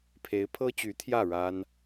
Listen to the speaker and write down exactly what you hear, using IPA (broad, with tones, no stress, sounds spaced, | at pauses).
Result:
pʰ e˧˥ ɪ̯ pʰ ɤ˥ t͡ɕ y˧˥ t̪ʰ j ä˥˩ ɻ a˥ n